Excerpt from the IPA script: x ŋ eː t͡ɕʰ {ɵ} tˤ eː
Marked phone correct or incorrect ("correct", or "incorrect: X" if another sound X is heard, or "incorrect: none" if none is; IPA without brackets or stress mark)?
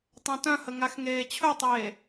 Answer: correct